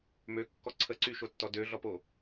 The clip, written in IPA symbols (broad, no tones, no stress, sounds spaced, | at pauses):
m ø kː ɔ ǀʰ ə ǀ y ʃ o tː ɔ d ø ɮ ɔ p o